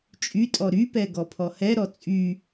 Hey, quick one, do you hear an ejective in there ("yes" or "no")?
yes